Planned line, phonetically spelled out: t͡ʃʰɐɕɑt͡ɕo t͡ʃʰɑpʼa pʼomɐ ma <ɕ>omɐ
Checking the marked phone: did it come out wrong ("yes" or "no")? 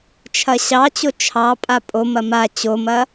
yes